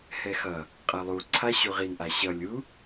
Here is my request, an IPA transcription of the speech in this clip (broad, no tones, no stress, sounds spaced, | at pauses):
h ɛ x ʌ | qʼ ʌ lˠ u ǀʰ a ɕ u ʁ i n ʔ a ɕ ʌ lʲ u